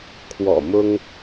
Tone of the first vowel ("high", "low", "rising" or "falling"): low